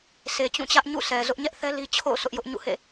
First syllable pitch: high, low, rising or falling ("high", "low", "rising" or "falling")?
low